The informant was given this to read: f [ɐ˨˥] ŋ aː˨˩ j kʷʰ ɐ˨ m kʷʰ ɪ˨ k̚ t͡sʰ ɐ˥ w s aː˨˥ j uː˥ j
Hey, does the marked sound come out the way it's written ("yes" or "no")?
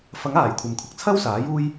yes